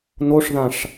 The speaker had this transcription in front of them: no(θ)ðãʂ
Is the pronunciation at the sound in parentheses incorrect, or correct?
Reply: incorrect